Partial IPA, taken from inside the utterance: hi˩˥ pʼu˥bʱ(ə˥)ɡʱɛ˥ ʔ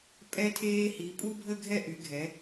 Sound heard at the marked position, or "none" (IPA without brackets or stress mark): ə˥